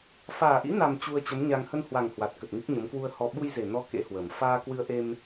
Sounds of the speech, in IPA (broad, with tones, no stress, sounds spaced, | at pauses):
f aː˨˩ ʔ ḭ˧˥ n a˨˩ m t͡ɕ u˧ ə̯ t͡ɕ ə˨˦ m ɲ a˧ ŋ h ə˧ n h w a˨˩ ŋ h w a˨˩ t̚ k ə˨˩ t̚ ŋ ɨ˦˥ k̚ ɲ ə˨˦ m k w u˧ ə̯ h ɔ˧ ɓ u˧ j z e˨˩ n ɔ˨˦ k ḛ˧˥ h w ə˨˩ m f aː˧ k w ɨ˧ ə̯ ʔ e˧ m